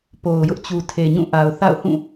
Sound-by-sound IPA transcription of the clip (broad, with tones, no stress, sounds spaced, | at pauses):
p o˨ ʊ̯ j ʊ˦ ʔ t͡ɕ u˨ tʰ e˨ ɲ ũ˦˨ ʔ a˨ ʊ̯ θ a̰˦˨ ʊ̯ h ũ˦˨